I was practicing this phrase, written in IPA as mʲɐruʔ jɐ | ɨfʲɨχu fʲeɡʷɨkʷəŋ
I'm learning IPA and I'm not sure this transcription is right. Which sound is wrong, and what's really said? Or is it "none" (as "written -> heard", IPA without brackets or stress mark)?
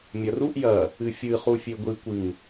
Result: ə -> ɨ